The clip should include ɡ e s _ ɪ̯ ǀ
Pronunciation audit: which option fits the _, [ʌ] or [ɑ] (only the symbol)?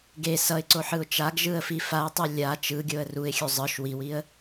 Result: ʌ